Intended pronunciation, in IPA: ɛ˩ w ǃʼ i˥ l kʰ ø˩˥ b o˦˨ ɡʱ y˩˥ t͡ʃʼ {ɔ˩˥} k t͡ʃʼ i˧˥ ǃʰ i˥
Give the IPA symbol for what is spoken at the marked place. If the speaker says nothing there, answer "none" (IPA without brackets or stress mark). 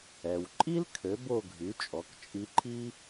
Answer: ɔ˩˥